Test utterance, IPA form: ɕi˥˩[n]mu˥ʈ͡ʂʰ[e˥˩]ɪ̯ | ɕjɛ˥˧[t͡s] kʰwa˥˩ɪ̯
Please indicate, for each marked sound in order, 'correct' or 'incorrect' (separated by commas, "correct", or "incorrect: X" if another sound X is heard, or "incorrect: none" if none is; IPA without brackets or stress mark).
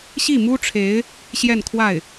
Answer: incorrect: none, incorrect: e˧˥, incorrect: n